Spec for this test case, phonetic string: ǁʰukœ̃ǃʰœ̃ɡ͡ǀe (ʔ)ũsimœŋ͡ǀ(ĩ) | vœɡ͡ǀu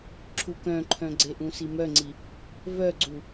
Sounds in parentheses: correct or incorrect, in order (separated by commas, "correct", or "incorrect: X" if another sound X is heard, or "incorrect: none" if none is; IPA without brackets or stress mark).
correct, incorrect: i